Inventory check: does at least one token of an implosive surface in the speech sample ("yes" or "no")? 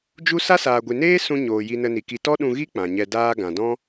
yes